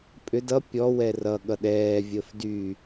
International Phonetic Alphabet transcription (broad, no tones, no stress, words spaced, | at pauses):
pʼʏ dʌ pʲɔwɛ rʌ ɠʌɗɛːvʲəːf dy